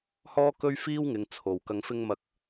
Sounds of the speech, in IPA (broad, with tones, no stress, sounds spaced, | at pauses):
h ɔː˥ k ɵ˥ ɥ f iː˥ w ŋ ɪ˨˧ ŋ t͡sʰ o˨˩ w k ɐ˧ ŋ f ɪ˥ ŋ m ɐ˧ k̚